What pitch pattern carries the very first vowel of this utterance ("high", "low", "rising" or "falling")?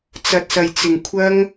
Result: low